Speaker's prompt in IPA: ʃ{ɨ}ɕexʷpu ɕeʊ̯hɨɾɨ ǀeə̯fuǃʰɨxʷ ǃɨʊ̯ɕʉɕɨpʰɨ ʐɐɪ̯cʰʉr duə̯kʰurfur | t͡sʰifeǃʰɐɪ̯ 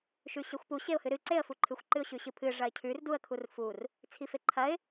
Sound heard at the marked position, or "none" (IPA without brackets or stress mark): ʉ